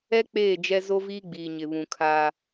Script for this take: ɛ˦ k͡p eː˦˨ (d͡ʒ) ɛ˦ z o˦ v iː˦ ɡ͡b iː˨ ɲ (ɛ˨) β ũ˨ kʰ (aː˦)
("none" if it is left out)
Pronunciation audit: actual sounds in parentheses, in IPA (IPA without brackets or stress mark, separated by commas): d͡ʒ, ɪ˨, aː˦